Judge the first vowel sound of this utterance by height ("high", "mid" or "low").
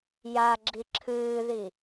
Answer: low